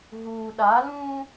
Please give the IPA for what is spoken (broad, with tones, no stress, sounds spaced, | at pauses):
ɣ uː˨ ɗ a˨˦ l ũ˦